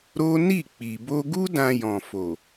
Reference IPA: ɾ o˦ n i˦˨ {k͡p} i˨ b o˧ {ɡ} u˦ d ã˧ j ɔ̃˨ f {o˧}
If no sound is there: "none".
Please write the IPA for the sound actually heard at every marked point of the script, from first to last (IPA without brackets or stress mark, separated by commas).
k͡p, ɡ, o˨